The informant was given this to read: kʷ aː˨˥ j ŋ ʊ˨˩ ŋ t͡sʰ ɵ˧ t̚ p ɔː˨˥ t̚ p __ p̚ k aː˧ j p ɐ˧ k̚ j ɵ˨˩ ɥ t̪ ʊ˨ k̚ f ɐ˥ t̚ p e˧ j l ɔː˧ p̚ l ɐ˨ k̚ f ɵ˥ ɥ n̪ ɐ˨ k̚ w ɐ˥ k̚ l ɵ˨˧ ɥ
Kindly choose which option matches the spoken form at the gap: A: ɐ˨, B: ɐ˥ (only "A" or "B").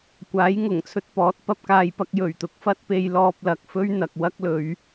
B